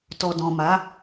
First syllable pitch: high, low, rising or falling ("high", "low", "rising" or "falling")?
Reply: low